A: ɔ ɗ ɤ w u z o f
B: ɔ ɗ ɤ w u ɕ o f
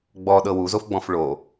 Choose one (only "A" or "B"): A